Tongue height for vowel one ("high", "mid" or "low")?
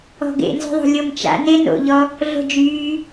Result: mid